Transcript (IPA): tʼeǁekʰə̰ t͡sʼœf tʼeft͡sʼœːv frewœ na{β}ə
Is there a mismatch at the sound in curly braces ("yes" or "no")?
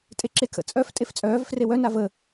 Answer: yes